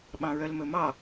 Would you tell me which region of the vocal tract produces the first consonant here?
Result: lips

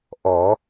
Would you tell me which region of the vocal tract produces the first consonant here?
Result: throat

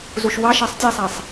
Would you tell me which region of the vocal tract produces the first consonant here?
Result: tongue tip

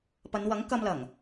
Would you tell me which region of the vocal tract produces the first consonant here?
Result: lips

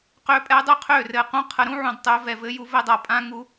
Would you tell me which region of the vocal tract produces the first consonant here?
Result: uvula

